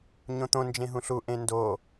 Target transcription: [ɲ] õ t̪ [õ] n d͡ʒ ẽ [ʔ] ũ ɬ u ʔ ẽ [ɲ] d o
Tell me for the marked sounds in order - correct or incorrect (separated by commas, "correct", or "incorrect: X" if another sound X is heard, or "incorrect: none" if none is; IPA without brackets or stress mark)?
correct, correct, incorrect: ɦ, incorrect: n